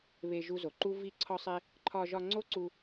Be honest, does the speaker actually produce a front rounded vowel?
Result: no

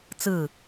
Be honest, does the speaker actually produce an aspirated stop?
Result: no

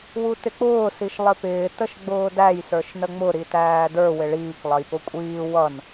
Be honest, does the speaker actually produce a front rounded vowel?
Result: no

